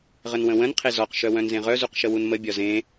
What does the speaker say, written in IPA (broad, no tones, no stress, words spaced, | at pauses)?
ʁənwə̃wə̃n qʰezɔq ʃœwœ̃nzẽʁœ zuqʃəwunmə bʲɒzẽ